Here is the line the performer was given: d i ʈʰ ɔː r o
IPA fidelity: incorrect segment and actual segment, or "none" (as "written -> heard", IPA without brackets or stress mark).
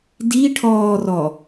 o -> ɔ